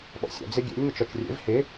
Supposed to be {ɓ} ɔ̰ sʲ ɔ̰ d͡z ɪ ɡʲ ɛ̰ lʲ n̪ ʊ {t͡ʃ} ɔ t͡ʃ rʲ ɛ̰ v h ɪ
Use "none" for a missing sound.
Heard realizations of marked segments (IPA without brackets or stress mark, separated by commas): ɓ, t͡ʃ